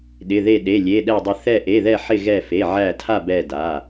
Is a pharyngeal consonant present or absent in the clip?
present